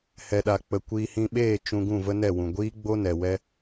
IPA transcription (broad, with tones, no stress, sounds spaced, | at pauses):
h ɛ˧ ɗ a˧ k͡p ə˧ kʷ iː˧ h ĩ˧ ɓ eː˦˨ t͡ʃ ũ˧ ɡ ũ˦˨ v ə˦ n ɛ˦˨ w ũ˨ ɡʷ iː˦ ɡ͡b o˦ n ɛ˨ w ɛ˦